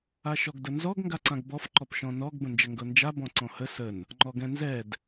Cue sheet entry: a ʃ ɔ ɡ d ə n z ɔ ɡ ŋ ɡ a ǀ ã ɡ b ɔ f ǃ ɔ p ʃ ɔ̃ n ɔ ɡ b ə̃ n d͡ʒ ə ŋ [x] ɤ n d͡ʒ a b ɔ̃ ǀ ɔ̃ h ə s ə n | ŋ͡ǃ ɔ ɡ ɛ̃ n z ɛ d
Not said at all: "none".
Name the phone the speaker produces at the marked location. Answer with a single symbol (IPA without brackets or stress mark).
ɡ